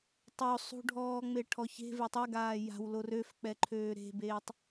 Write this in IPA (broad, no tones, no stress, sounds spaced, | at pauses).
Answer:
tˤ o sˤ ṳ ɖʱ ɔː ŋ͡m e ʈʰ ɔ ç e̤ v e tˤ ɛ ɡ aː j a̤ w l o r ø f k͡p ɛ ǃʰ øː ɾ e̤ b eː tˤ